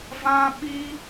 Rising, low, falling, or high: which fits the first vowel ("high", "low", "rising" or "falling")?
high